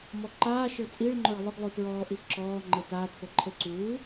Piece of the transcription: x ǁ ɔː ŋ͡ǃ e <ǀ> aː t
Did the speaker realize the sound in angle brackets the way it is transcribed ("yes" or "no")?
no